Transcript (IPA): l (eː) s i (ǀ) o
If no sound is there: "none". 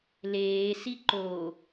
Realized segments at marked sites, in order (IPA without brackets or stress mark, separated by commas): eː, ǃ